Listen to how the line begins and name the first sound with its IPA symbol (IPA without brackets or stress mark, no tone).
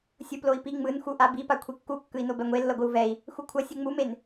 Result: sʲ